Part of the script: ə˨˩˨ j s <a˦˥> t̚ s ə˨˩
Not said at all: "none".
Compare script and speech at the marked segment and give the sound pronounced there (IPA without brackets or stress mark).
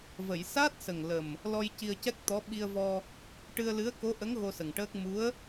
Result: a˦˥